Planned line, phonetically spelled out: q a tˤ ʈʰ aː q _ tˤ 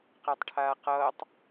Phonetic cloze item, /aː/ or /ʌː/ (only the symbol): ʌː